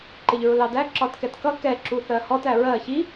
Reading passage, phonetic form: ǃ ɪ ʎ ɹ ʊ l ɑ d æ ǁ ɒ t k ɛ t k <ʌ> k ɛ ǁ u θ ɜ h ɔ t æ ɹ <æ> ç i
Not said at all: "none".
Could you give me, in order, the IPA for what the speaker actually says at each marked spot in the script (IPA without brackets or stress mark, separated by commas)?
ʌ, ɜ